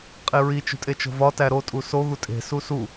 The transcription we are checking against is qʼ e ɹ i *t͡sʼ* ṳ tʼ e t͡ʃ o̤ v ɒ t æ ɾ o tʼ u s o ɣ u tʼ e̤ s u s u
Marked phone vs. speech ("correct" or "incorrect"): incorrect